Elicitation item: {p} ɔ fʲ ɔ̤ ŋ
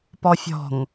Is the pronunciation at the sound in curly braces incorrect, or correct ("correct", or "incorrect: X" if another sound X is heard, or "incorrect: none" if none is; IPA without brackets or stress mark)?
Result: correct